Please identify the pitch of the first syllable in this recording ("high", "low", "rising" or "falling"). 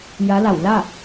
rising